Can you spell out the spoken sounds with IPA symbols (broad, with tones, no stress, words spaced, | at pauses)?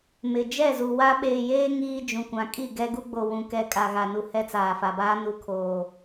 mɪ˨ d͡ʒɛ˦˨zu˨ wa˦ ɓeː˨jeː˦ ŋiː˦ d͡ʒũ˨kʷã˨ kʼi˦˨ɡɛ˦ ɡu˦ɡ͡bo˨ wũ˨ kɛ˨ kʼa˨ɣa˨nu˨ hɛ˦t͡saː˨fa˨baː˦ nu˨ kʰoː˨